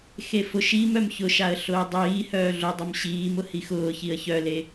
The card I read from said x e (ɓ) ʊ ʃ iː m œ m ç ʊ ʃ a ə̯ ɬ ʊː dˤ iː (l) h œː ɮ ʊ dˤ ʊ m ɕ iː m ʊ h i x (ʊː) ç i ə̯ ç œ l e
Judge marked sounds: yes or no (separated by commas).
no, no, yes